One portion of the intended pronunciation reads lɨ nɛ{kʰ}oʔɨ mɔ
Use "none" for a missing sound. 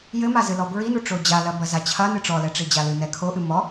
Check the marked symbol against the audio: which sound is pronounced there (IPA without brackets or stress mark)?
kʰ